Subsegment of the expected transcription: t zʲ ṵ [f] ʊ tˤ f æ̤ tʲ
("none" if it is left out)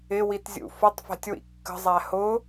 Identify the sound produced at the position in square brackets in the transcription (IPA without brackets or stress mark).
f